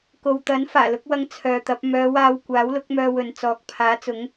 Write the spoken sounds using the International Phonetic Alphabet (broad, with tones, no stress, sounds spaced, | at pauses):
k o˨ w t̪ ɐ˨˥ n f aː˨˩ l ʊ˨˥ k̚ w ɐ˧ ŋ t͡sʰ œː˨ t̪ ɐ˨˥ p̚ m œː˨˧ w aː˧ w kʷ aː˨˥ w l ʊ˨˥ k̚ m œː˧ w ɵ˨ n t͡s ɔː˨˥ k̚ pʰ aː˨˥ t͡s ʊ˨˥ ŋ